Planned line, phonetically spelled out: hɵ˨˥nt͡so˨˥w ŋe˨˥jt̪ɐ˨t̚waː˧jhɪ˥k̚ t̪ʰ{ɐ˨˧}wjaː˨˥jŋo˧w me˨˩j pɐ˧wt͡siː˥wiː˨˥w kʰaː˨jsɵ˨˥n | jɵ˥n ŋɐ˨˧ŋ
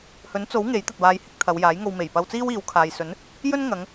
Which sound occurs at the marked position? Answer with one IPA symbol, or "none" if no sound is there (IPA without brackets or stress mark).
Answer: ɐ˨˧